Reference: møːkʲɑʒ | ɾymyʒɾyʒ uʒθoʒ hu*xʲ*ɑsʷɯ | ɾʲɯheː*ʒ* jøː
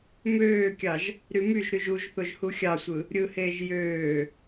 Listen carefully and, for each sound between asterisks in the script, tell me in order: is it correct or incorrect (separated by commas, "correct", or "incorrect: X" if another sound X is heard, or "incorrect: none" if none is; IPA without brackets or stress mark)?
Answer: correct, correct